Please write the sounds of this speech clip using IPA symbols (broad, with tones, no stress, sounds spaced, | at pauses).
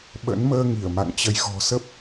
ɓ ə̰˧˥ n m əː˧ ŋ i˧˩ ə̯ m a̰˧˨ ŋ t͡ɕ ə˨˦ j ɣ ɔ̤˨˩ s ə˦˥ p̚